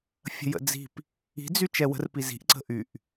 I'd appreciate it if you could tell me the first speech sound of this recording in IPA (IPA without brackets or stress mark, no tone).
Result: fʲ